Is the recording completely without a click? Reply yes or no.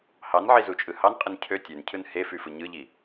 yes